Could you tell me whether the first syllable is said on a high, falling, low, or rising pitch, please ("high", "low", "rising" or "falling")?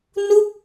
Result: falling